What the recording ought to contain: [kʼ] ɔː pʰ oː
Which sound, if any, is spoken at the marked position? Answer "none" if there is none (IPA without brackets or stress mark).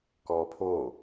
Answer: k